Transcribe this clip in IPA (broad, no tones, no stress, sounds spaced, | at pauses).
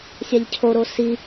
sʲ a ʎ cʰ o ɾ o s i